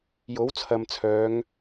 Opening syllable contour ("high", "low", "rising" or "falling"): rising